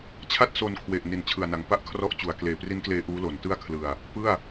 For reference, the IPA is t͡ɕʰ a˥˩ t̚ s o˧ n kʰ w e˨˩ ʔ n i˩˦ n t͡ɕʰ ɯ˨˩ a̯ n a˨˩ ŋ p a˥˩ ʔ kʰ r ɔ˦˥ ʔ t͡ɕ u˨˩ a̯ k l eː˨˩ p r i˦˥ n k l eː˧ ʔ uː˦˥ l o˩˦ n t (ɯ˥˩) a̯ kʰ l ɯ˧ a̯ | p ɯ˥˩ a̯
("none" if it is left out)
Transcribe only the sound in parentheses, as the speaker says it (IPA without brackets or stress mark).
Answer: ɯ˥˩